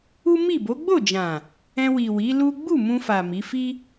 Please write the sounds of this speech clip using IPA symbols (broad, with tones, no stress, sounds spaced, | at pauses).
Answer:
u˦ m i˦˨ b o˨˦ ɡ͡b o˦˨ d͡ʒ ã˨ | ɛ̃˧ w i˨ w i˨˦ l u˦ ɡ͡b u˦˨ m ũ˧ f a˨ m i˨˦ f i˦